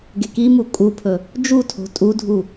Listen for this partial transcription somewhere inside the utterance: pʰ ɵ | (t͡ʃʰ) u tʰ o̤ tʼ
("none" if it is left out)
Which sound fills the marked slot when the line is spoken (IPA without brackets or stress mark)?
d͡ʒ